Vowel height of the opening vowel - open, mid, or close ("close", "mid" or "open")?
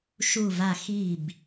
close